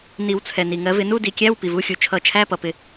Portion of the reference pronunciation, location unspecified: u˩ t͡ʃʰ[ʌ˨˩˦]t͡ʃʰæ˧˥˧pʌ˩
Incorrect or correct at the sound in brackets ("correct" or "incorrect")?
correct